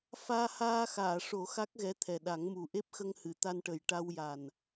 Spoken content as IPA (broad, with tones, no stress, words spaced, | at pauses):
faː˧haː˧ xaː˨˩˨ʂo˨˩˦ xa˦˥k̚ɣɛ˧˥t̪ʰɛ˨˩ɗa˨˩˦ŋ mu˨˩ʔe˦˥p̚xə˧ŋhɨ˨˩˨ t̪a˧nʈə˨˩j ʈa˧wja˨˩n